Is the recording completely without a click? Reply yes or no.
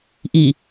yes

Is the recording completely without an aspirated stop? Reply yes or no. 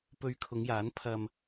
no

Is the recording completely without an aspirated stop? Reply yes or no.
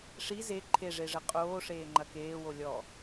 no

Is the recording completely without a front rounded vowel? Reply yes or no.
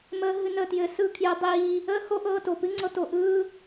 yes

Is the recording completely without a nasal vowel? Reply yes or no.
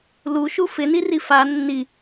yes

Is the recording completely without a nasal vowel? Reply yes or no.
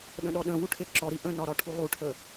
no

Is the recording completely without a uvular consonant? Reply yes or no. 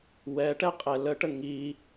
no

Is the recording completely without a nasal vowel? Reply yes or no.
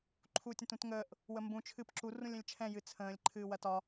no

